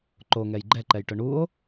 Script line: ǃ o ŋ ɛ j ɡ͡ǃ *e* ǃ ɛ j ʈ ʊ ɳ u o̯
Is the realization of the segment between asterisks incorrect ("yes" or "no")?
yes